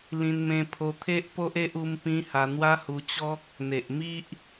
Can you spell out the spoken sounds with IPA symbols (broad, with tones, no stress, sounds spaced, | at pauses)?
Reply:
l ĩ˧ n m ẽ˧ pʰ o˧ t̪ʰ e˦ ʔ p o˦ ʔ e˦ ʔ u˦ m p ĩ˦ h a˧ n̪ w a˦ h u˧ t͡ɕ ɔ˦ k̚ | n̪ e˨ ʔ m i˦ ʔ